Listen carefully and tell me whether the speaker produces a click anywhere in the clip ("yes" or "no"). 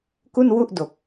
no